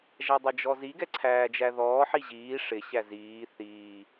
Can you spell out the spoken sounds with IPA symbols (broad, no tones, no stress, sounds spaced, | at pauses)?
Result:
ʒ æ dˤ ʌ d͡ʒ ɔ z i ɡ ɛ ǀʰ æː d͡ʒ æ ð ɔː ħ i ʑ iː ʂ ɪ ɕ æ z iː θ iː